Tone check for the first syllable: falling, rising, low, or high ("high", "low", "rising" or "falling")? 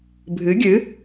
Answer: rising